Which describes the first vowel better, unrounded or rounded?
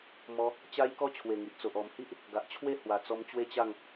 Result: rounded